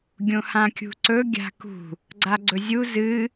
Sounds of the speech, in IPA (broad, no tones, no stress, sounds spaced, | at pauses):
ɡʲ õ h ã kʲ ṳ ǀ ɵ ɡʲ a̤ k ṳ | ɡ͡ǀ a ɡ͡ǀ ɵ zʲ u z ɨ